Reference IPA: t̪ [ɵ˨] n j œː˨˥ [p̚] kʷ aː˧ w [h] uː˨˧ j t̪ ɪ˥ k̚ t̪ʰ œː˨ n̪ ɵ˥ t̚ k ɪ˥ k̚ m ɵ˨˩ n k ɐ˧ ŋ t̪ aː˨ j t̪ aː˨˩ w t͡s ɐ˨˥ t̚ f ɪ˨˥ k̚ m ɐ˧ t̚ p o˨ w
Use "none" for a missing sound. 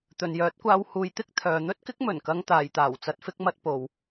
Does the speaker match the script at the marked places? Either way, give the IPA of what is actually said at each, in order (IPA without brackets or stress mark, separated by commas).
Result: ɵ˨, t̚, h